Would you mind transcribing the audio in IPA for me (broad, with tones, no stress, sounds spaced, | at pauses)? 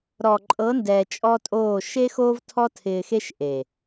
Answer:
ɾ ɔ˨ ǃʼ ɤ˨˦ n d ɛː˨ t͡ʃʼ ɔ˦ tʼ oː˦˨ ʃ e˦ x oː˦ v tʰ ɔ˦ tʰ ɪː˧ x e˦ ʃ ʔ e˨